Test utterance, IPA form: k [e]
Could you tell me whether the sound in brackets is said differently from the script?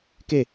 no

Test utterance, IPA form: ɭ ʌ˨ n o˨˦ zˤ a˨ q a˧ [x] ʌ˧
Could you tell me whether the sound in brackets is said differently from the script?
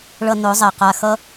no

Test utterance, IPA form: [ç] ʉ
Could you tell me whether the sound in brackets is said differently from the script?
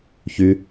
no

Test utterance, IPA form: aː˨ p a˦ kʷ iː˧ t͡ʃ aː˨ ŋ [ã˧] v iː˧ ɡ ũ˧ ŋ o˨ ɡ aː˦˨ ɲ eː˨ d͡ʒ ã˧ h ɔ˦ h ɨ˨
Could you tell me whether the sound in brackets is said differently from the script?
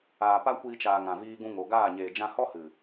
yes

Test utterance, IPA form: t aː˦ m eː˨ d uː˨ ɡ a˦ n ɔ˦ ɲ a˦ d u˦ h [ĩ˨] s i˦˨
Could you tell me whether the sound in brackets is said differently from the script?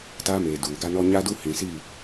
no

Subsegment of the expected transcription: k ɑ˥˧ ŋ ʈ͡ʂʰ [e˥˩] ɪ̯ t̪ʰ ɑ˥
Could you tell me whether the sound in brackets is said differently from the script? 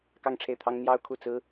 no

